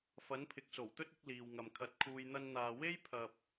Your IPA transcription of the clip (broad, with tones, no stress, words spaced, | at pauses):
fɐ˨˥npʰɪ˨k̚so˨˩wt̪ɵ˥t̚ ɪ˧k̚ liː˨wŋɐ˨mkʰɐ˨˥t̚ kʰuː˨jn̪ɐ˧nn̪aː˨ we˥j pʰɐ˨p̚